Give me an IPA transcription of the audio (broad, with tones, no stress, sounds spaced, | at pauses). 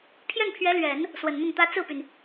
pʰ j ɛ˥˩ n pʰ ɥ ɛ˧˥ l ɥ ɛ˨˩˦ n | s w ə˨˩ n n̪ ʊ˥˩ ŋ t̪ ä˥ t͡s ɹ̩˥˩ p y˩ n